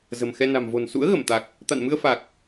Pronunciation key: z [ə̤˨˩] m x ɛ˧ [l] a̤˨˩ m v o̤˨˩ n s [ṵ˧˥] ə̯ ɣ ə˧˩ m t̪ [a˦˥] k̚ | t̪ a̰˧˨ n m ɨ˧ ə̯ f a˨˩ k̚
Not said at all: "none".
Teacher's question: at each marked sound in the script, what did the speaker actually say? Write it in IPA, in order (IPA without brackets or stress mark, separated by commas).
ə̤˨˩, n, ṵ˧˥, a˨˩